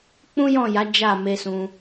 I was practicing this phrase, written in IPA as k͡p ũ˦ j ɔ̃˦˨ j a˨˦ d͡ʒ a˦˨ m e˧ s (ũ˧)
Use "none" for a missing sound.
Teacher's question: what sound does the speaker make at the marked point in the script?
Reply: ũ˧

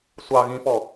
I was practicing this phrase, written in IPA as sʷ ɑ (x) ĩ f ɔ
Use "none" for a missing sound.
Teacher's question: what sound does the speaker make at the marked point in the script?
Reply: ɣ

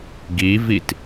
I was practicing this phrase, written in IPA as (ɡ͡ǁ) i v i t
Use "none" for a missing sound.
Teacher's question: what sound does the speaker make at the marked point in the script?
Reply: ɡ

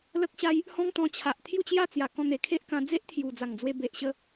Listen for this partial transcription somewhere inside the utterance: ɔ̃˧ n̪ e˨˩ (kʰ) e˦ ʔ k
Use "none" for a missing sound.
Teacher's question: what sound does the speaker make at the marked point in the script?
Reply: kʰ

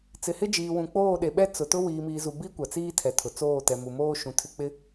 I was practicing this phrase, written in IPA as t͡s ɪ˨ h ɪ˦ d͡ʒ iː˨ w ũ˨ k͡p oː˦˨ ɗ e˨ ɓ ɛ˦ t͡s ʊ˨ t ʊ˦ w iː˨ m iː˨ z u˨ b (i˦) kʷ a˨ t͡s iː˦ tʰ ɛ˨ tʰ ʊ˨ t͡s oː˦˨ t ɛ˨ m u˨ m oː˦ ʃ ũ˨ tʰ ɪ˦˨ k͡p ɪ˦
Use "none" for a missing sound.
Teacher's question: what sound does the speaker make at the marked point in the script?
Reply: i˦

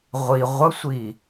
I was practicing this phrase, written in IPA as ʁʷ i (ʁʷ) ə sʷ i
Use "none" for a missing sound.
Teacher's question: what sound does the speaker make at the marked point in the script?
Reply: ʁʷ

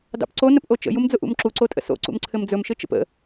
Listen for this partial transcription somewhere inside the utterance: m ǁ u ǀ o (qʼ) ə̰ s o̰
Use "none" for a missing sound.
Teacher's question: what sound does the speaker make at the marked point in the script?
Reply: tʼ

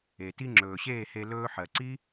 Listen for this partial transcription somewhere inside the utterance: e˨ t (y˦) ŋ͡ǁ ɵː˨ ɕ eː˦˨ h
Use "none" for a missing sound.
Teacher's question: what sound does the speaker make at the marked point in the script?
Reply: i˦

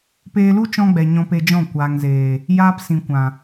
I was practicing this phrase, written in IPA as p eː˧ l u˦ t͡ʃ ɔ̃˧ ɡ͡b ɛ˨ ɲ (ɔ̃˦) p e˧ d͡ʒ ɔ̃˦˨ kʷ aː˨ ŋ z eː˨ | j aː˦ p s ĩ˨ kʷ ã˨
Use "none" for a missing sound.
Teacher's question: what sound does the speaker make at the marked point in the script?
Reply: ɔ̃˧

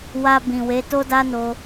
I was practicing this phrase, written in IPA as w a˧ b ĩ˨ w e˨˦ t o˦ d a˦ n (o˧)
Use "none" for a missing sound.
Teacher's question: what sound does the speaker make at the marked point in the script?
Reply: o˧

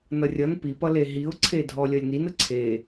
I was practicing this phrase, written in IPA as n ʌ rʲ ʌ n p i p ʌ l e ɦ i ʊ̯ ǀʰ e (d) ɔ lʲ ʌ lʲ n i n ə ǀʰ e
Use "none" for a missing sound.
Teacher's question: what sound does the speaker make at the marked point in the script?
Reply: dʱ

